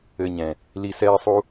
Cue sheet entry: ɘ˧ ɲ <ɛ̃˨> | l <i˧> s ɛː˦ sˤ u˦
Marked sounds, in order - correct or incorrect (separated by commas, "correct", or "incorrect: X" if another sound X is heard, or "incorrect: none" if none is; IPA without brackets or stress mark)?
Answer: correct, correct